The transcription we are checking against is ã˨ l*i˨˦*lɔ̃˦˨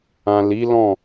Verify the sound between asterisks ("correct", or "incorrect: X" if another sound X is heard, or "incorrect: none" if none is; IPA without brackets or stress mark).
correct